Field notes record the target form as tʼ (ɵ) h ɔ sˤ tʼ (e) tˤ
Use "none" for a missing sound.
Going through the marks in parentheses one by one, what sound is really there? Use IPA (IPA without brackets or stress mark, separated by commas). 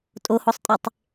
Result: o, e